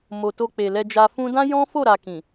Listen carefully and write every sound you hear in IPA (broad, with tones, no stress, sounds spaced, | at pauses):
m o˨ t o˧ k͡p e˨ l ɛ˧ d͡ʒ a˧ f ũ˦ d ã˦ j ɔ̃˦ f o˦˨ ɾ a˧ k ĩ˨